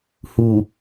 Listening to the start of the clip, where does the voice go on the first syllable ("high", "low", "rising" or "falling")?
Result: low